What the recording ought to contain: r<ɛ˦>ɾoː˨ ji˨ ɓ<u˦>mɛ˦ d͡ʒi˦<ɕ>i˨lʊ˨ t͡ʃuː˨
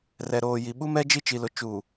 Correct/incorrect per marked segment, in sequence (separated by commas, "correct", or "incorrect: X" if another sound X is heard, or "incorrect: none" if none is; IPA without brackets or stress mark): incorrect: ɛ˨, correct, incorrect: t͡ʃ